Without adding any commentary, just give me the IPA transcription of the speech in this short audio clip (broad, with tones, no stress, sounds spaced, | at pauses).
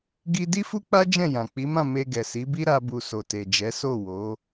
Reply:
ɡ i˦ d i˦ f u˦ k͡p a˦ d͡ʒ ɛ̃˦˨ j ã˨ k͡p i˨˦ m ã˦˨ m e˧ ɡ ɛ˨ s i˨˦ b i˦ ɾ a˦ b u˧ s o˨ t e˨ d͡ʒ ɛ˨˦ s o˦˨ w o˨˦